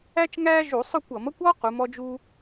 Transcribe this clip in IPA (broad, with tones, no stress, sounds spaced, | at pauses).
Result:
æ˥ t͡ʃ ŋ æː˥ ʒ u˧˩˧ sˤ ʊ˥˧ kʷ ʌ˧˩˧ m ʌ˥ kʷ ɔ˥ q u˨˦ m ɔ˥ d͡ʒ u˥